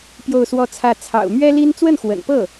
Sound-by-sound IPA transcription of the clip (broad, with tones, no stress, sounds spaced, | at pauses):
p j o˥˧ ʊ̯ s w ɔ˥˧ t͡sʰ ä˥˩ t͡sʰ ɑ̰˨˩ ʊ̯ m ɥ ɛ˥ l i˥ n t͡s w ə˥˩ n x w ə̰˨˩ n p ɤ˥˩